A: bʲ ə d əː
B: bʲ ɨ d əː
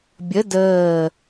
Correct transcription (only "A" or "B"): A